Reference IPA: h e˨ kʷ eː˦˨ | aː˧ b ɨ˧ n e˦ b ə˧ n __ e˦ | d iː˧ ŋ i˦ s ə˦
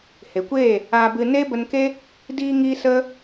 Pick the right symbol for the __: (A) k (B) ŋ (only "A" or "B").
A